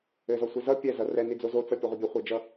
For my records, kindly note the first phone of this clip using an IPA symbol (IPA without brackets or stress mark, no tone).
ɘ